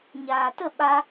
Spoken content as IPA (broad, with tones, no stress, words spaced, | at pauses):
ɲaː˨tə˦˨ ɓa˦